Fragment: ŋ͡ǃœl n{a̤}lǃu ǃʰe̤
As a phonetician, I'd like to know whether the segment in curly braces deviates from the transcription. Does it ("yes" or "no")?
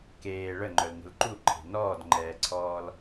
yes